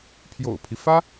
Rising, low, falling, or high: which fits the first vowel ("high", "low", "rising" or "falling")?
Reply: low